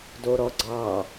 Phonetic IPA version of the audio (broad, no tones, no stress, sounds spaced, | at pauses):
d o ɾ ɔ ɡ͡ǀ ɑ